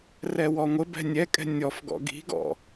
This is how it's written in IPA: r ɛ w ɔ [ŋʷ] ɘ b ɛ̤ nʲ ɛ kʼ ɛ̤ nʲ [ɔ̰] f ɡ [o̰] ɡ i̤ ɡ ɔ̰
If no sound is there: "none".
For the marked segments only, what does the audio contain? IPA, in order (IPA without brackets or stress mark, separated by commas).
ŋʷ, ɔ, ɔ̰